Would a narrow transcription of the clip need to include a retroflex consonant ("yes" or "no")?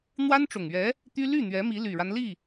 yes